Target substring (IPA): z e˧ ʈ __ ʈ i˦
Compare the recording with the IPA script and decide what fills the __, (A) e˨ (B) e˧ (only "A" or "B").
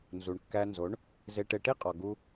B